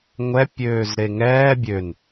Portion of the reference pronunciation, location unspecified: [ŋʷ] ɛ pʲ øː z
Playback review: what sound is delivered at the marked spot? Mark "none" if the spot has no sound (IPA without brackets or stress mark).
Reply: ŋʷ